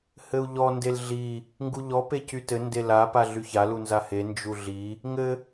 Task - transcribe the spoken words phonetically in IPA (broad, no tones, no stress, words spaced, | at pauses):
hɘu̯ʎɔ ndelɮi | ŋɡuʎɔ pecytɘ ndela paɮyça lunzahe nd͡ʒuɮi | ŋɘ